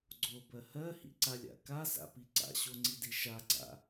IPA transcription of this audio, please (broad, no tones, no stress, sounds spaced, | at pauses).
ɡ͡ǀ o b ɜ h ɜ h ḭ ǀ a lʲ a̰ k a s a̰ p i ǀ a̰ ɕ o ŋ͡ǀ i d i ʃ a ɡ͡ǀ a̰